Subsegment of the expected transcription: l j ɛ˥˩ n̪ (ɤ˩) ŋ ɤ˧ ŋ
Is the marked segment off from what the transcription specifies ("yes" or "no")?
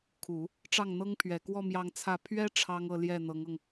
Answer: yes